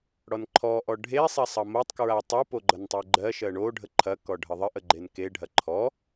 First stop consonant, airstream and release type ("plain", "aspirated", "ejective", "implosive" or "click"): click